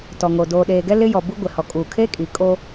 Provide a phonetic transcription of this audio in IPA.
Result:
t ɔ˨ ŋ o˨ d oː˨ ɗ eː˨ ɡ ɛ˦ l ɪ˦ j ɔ˨ b u˦ ɡʷ ɪ˨ h ɔ˨ kʼ uː˨ kʰ eː˦ kʼ iː˨ kʼ oː˦

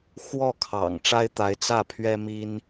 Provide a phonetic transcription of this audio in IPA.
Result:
x w ɔ˥˩ kʰ ɑ̰˨˩ ŋ ʈ͡ʂ a˥ ɪ̯ t̪ a˧˥ ɪ̯ t͡s ä˥˩ pʰ ɥ ɛ˥ m i˥ n

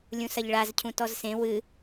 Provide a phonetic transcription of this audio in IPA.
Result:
lʲ ũ s ɐ ʎ ɭ a z cʰ ũ t ɔ z s ẽ w ɨ

